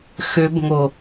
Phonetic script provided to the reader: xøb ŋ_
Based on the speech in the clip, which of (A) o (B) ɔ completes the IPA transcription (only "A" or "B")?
A